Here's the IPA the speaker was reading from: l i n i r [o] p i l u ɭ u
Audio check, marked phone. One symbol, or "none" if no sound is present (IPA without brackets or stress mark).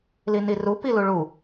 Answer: u